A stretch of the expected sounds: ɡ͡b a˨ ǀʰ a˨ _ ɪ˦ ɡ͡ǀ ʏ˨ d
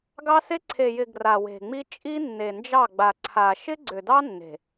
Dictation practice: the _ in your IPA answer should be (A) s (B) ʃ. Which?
B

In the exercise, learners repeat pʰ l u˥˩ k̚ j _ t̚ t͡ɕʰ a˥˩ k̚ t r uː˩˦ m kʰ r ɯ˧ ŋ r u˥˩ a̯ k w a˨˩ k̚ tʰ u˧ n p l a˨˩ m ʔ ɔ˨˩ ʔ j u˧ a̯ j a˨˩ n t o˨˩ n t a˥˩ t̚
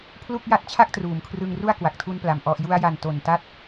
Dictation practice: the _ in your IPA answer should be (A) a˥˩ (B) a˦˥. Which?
B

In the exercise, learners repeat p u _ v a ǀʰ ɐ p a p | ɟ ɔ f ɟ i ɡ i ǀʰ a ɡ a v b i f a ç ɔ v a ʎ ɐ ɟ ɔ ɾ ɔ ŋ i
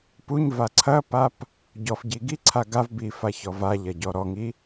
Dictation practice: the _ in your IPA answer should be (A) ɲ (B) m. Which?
A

